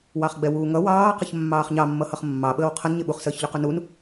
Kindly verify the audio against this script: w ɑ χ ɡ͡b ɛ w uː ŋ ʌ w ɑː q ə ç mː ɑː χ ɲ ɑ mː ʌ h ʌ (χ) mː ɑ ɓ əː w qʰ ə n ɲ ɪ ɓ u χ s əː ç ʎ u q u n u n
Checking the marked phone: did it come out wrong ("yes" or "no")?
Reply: no